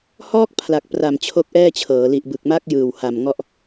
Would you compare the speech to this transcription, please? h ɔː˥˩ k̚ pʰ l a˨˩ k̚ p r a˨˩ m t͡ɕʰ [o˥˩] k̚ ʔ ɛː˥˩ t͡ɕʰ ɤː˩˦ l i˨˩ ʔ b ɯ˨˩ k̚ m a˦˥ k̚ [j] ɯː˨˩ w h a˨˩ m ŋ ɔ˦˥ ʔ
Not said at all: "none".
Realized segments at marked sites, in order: o˦˥, j

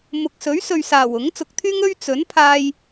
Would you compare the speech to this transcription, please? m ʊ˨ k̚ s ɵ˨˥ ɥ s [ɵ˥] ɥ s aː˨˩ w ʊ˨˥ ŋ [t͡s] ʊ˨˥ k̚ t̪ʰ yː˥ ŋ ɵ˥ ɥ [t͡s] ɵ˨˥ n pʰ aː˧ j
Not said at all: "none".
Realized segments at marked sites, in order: ɵ˨, t͡s, t͡s

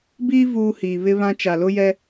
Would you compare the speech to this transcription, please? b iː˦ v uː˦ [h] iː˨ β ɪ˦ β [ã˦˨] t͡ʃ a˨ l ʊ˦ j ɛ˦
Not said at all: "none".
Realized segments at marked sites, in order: h, ã˦

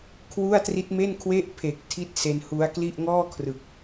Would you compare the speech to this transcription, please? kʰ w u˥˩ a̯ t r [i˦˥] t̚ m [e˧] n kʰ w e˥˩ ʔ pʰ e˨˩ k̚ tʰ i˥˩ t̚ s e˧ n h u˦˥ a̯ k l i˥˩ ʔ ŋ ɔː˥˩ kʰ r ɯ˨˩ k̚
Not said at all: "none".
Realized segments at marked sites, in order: i˦˥, e˥˩

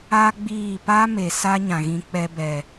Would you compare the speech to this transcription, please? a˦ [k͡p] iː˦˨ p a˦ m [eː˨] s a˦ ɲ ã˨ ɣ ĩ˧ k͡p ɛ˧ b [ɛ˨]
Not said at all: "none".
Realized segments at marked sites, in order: ɡ͡b, e˨, ɛ˨

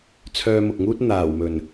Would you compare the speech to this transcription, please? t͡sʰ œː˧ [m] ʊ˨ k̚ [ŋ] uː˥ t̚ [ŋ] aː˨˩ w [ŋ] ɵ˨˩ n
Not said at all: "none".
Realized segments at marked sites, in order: m, ŋ, n̪, m

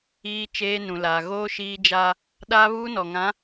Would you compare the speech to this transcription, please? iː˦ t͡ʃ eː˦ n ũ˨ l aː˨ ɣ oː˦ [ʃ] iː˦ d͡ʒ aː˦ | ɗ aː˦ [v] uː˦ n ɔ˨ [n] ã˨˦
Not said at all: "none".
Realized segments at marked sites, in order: ʃ, β, ŋ

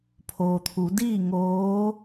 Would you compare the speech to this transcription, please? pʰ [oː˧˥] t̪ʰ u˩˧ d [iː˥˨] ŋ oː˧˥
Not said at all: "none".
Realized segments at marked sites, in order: oː˩, iː˥˨

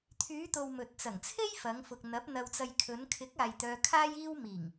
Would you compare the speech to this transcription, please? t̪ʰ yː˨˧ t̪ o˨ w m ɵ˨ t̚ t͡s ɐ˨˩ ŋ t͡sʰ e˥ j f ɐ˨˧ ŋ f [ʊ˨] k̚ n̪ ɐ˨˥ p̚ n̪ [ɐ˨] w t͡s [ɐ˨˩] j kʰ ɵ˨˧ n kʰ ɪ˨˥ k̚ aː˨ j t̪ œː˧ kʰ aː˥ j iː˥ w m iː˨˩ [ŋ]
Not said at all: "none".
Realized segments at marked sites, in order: ʊ˨, ɐ˨, ɐ˨, ŋ

